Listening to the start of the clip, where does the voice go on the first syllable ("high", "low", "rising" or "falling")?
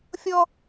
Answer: high